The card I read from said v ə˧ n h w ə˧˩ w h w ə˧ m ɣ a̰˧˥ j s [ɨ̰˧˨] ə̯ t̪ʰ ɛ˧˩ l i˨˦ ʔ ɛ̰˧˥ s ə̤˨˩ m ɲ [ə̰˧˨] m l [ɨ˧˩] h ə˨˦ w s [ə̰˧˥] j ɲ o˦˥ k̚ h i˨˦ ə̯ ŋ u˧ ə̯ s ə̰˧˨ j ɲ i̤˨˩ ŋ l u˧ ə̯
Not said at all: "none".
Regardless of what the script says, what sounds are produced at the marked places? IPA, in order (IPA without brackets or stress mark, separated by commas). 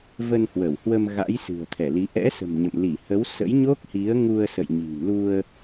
ɨ̤˨˩, ə̰˧˨, i˧˩, ə̰˧˥